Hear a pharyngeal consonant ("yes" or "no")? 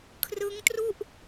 no